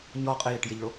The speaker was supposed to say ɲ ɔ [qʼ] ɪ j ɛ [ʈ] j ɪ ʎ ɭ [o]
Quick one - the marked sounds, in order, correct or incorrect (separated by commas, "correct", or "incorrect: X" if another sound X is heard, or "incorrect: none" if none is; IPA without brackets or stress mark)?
correct, correct, correct